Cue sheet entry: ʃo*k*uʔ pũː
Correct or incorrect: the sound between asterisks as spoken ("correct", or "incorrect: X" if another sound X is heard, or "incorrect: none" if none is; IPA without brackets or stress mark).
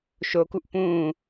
correct